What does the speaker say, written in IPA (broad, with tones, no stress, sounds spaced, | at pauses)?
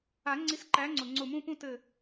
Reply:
a˨˩˦ ŋ͡ǀ i˨˥ s ǃ æ˨˥ ŋ͡ǀ ʊ˩ ŋ͡ǀ ʊ˧˩ m ũ˥˧ p ũ˥˧ t ɘ˧˩